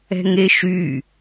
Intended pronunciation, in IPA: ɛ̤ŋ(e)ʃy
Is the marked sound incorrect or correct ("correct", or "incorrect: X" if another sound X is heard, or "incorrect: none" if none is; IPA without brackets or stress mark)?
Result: correct